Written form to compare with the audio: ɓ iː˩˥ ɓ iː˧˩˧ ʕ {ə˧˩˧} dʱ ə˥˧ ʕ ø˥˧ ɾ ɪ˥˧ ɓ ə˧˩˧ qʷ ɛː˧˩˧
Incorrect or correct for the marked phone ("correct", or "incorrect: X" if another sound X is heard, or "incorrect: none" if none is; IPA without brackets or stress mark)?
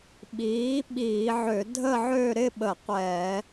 incorrect: ø˧˩˧